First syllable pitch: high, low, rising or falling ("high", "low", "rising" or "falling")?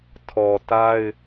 low